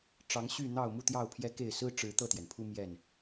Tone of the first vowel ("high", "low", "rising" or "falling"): rising